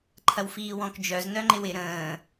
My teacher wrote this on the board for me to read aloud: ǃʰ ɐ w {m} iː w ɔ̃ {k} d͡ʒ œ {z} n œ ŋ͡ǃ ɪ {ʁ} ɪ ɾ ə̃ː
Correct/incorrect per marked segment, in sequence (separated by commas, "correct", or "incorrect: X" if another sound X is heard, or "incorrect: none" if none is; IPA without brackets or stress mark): incorrect: f, correct, correct, incorrect: w